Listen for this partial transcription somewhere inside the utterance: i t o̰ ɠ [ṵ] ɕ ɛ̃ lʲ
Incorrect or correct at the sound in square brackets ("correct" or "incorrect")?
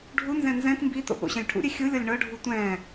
incorrect